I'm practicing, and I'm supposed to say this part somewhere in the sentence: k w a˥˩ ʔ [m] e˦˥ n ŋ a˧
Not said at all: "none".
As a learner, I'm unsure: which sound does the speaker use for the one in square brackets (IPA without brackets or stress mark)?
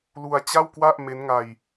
m